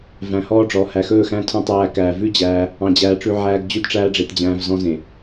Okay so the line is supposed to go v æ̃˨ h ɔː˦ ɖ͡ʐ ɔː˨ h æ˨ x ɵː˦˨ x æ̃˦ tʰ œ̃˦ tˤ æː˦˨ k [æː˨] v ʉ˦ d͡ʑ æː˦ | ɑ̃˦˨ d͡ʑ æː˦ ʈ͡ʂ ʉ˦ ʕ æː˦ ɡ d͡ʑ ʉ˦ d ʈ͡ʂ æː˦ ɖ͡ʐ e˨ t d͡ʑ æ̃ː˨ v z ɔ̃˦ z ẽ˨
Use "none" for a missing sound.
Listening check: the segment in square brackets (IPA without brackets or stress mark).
æː˨